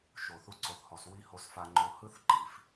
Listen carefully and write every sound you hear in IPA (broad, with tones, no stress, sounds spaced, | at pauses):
ʃ o˨ θ u˧ ǀ o˨ θ h ɔ˨ s w i˧ h o˧ s f a˧ ŋ͡ǃ o˧ h ɯ˦ θ ǃ i˨ f